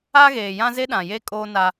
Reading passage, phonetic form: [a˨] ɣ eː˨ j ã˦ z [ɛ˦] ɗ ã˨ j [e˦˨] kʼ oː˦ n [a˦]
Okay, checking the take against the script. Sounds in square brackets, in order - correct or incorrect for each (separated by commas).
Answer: incorrect, incorrect, incorrect, correct